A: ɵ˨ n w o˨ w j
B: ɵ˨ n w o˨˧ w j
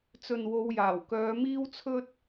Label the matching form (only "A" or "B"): B